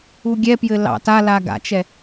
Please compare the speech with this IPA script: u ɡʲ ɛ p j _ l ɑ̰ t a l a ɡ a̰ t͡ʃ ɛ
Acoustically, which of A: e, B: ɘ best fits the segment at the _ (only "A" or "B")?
B